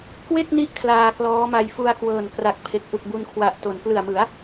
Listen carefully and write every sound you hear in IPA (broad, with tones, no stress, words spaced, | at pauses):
kwe˥˩k̚ni˦˥ʔ kʰlaː˧klɔː˦˥ma˧j fu˧a̯kwɤː˨˩n kra˨˩k̚pʰe˨˩k̚ ʔu˨˩k̚bu˧nkʰwa˨˩ʔto˩˦n plɯ˨˩a̯mɯ˩˦a̯